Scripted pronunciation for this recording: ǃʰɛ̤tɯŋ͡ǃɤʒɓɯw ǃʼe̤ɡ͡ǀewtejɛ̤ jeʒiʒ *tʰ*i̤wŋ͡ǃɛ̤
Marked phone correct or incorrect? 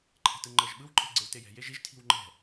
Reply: correct